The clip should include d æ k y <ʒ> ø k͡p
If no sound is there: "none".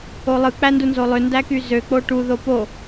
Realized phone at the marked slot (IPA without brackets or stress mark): z